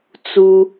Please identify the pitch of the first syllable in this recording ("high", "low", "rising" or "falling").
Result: high